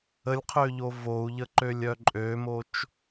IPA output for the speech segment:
ə lʲ qʰ ø ʎ o v o u̯ ʎ ə ǃ ø lʲ œ ǃʼ ø m o t͡ʃ

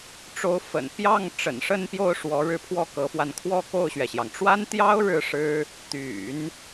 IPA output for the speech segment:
ʈ͡ʂ o˧˥ ʊ̯ f ə̰˨˩ n p j ɑ˥˩ ŋ ʈ͡ʂ ə̰˨˩ n ʂ ə˥˧ n p j o˥˩ ʊ̯ ʂ w ɔ˧˥ ɻ ɻ̩˥ pʰ w ɔ˥˩ k ɤ˧˥ f w a˧ n kʰ w ɔ˥˧ k o˥˩ ʊ̯ ɕ ɥ ɛ˩ ɕ j ɑ˩ ŋ ʈ͡ʂ w a˥ n t̪ j ɑ˥ ʊ̯ ɻ ɻ̩˥˩ ʂ ɻ̩˥ | t̪ y̰˨˩˦ n

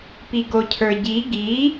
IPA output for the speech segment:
p i ɡ o cʰ ə˞ ɟ i ɡ i

